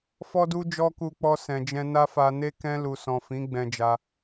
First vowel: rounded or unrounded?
rounded